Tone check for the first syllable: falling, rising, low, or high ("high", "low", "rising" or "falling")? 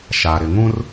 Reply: low